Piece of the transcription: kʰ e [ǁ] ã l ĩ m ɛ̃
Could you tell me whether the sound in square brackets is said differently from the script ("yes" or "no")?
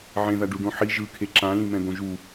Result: no